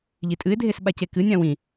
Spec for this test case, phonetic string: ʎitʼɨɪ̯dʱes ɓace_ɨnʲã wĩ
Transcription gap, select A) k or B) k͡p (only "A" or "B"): A